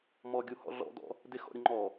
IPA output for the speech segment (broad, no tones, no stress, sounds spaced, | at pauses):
m ɔ ɡʲ u h ɔ̰ ɮ ɔ̰ d ɔ̰ | d ɪ x ɔ̰ ɾʲ ʊ ŋ͡ǃ ɔ